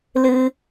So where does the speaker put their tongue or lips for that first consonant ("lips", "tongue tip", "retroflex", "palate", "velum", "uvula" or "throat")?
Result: tongue tip